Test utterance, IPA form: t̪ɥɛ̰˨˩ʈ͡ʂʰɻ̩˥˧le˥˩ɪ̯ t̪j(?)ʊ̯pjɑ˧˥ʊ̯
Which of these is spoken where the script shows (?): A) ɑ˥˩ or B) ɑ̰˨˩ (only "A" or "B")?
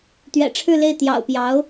B